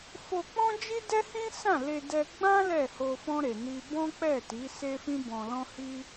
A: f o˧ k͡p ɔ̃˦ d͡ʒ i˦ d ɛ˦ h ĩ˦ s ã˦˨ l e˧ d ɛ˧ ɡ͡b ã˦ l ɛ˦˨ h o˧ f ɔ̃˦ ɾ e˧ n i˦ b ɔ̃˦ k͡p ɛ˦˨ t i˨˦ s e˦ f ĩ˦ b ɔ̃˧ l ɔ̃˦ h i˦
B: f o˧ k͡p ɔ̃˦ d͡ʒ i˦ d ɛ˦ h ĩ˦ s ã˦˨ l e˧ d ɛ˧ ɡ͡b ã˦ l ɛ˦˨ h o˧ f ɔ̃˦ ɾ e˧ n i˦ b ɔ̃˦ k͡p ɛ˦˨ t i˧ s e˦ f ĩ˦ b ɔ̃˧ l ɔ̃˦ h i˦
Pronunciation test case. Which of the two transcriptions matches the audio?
A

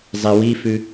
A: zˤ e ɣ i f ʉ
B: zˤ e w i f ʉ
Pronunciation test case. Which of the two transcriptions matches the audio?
B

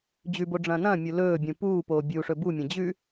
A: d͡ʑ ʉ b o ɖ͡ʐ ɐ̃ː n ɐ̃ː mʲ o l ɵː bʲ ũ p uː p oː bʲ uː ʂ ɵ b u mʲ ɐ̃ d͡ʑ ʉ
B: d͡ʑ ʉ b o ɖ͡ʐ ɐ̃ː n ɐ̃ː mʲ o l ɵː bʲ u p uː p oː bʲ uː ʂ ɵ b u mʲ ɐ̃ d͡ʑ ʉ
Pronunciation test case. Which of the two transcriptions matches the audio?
A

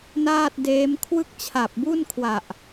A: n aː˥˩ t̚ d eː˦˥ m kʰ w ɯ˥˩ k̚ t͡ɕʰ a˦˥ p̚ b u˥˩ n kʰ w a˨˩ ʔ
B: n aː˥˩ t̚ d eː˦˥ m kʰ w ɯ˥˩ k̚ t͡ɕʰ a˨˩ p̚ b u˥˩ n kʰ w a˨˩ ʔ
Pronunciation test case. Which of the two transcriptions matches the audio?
B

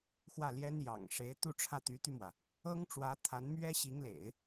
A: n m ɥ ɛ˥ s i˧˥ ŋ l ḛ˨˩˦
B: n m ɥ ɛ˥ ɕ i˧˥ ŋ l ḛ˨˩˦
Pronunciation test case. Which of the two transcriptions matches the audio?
B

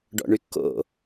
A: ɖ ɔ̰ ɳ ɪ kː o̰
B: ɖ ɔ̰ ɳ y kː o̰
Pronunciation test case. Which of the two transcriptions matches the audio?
B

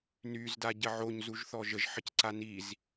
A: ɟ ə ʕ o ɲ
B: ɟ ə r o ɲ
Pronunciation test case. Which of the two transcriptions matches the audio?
A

